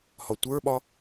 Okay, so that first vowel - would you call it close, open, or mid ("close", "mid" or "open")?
open